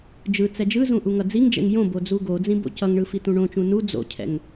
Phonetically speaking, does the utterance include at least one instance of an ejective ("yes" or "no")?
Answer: no